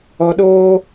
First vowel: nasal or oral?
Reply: oral